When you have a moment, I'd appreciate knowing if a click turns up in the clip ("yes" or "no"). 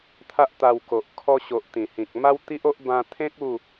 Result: no